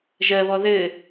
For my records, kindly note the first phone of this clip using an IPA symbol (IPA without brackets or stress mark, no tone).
ʒ